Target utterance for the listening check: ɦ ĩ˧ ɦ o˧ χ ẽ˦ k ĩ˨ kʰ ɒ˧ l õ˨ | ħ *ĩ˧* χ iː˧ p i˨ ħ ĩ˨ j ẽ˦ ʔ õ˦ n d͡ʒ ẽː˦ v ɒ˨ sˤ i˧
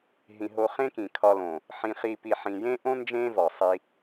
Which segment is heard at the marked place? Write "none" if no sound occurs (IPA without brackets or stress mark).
ĩ˧